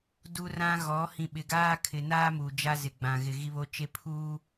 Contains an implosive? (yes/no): yes